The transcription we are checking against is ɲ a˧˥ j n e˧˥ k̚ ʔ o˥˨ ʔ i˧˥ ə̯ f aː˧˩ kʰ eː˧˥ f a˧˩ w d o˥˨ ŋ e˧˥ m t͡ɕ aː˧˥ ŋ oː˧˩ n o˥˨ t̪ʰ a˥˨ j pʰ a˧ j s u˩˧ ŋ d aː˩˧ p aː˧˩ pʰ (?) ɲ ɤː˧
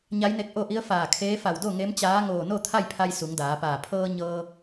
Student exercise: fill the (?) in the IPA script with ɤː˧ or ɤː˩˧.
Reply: ɤː˧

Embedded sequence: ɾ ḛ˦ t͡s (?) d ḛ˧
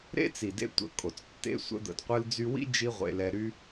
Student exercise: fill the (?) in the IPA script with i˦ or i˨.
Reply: i˨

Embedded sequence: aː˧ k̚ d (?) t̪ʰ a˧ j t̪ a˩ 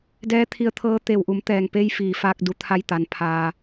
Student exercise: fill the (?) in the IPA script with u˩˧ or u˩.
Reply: u˩˧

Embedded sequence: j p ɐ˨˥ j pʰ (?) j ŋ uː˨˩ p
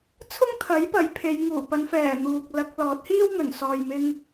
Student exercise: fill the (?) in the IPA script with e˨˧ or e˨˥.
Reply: e˨˧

